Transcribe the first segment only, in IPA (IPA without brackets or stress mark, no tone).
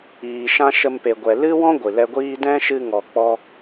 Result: iː